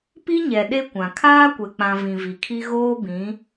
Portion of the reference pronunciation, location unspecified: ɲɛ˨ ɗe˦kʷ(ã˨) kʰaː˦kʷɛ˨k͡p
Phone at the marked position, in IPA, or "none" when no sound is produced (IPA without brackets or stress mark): ã˨